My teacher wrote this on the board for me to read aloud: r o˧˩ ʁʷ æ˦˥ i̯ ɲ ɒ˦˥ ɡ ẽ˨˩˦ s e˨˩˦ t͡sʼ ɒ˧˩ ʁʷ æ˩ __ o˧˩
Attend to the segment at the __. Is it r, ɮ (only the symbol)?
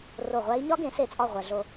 ɮ